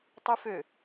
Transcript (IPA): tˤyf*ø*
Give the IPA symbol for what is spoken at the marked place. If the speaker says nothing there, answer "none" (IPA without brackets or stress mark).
ø